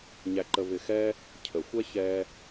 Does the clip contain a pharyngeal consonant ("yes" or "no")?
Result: no